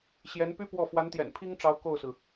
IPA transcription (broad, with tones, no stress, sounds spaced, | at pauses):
ɕ j ɛ˧˥ n p y˥ p w ɔ˥˩ f w a˧˥ n t̪ j ɛ̰˨˩ n pʰ i˥ ŋ ʈ͡ʂ ɑ˧˥ ʊ̯ k o˥˩ ʊ̯ s ɹ̩˩